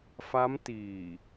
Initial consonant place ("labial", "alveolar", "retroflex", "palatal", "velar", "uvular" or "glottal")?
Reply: labial